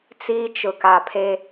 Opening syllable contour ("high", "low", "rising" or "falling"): high